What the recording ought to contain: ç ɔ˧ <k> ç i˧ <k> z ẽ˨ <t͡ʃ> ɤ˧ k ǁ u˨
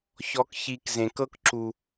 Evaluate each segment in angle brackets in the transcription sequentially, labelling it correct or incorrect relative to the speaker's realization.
correct, correct, incorrect: k

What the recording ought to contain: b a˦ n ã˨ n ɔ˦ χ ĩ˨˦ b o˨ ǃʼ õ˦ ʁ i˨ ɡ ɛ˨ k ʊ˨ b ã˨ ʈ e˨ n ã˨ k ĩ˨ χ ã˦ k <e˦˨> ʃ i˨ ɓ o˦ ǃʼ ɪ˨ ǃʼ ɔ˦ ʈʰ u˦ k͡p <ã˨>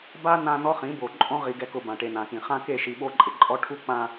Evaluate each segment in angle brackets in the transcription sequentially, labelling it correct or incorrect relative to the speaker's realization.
correct, correct

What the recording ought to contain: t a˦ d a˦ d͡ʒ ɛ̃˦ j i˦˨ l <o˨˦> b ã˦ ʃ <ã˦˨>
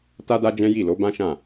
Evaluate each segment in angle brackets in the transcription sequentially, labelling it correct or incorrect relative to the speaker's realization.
correct, correct

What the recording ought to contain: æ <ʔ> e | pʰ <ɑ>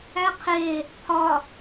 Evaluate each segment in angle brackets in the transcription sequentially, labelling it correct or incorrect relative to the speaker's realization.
incorrect: qʰ, incorrect: ɒ

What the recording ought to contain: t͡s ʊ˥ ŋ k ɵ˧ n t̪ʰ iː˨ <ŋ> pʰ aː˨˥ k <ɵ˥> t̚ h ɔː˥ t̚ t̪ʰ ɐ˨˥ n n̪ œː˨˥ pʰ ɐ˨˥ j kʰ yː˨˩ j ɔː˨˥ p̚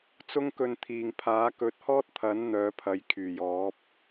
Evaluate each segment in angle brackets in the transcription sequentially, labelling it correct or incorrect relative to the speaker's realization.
correct, incorrect: ɵ˨˥

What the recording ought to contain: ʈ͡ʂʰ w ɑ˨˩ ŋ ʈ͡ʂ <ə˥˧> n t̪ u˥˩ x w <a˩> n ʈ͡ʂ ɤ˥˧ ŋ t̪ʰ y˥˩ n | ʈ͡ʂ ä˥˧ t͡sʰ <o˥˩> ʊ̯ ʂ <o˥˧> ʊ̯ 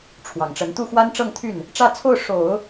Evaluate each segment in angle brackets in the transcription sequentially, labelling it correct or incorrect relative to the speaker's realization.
incorrect: ə˧˥, incorrect: a˥, correct, incorrect: o˨˩˦

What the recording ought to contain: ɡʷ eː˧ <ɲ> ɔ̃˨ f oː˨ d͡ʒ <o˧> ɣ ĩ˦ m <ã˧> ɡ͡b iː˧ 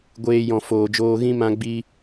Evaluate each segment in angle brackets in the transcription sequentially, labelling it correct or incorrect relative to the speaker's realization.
incorrect: j, incorrect: oː˧, correct

